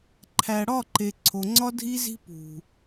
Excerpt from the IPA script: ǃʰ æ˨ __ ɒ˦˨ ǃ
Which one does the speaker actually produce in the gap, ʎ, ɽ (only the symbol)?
ɽ